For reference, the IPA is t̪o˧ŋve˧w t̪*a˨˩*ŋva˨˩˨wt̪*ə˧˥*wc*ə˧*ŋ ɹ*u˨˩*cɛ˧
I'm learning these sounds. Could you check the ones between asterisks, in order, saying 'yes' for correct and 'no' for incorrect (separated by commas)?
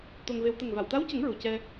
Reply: no, no, no, yes